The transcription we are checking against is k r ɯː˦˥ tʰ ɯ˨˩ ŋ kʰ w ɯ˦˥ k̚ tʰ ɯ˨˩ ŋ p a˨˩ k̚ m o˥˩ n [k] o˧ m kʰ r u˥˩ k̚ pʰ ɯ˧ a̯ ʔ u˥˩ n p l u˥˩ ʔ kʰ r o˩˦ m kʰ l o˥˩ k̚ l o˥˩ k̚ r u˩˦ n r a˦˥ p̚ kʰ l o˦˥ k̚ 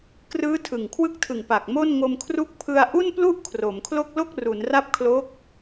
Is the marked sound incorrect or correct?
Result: incorrect